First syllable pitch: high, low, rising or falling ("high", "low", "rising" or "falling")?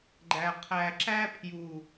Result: low